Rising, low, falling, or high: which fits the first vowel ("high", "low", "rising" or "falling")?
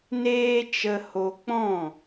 high